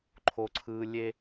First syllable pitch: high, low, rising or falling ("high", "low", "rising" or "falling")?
high